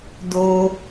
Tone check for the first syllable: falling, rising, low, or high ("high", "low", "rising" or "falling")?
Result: high